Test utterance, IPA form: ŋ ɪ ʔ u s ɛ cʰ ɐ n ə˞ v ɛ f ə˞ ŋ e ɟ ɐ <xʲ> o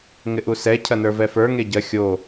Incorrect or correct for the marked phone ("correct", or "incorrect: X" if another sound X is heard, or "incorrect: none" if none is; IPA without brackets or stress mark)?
correct